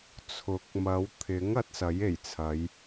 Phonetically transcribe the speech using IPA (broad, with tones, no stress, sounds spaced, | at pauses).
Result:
t͡sʰ ʊ˨˥ k̚ m ɐ˨˧ w t̪ʰ ɪ˨˥ ŋ ɐ˨˥ t̚ s ɐ˨˥ j e˨˩ j t͡sʰ ɐ˨˧ j